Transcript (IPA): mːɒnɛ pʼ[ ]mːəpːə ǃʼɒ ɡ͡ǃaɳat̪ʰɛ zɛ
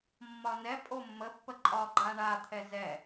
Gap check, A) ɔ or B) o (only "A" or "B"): B